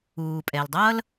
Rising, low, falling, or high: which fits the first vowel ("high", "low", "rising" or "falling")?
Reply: low